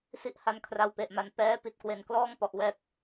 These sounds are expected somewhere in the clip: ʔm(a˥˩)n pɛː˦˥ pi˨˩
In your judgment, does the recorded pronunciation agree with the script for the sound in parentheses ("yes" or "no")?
no